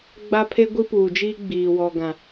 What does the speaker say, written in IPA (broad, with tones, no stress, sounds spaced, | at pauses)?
ɡ͡b a˦ pʰ e˦ ɡʷ i˦ p uː˨ d͡ʒ i˦ ɡ͡b iː˨ w ɔ˨ ɡ ã˨